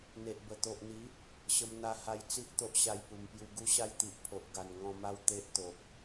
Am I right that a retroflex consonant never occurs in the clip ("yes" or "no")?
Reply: yes